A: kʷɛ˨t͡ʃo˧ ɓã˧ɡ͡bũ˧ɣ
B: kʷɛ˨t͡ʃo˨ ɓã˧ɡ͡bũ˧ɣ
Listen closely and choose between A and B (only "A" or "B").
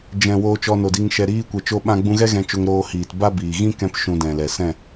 A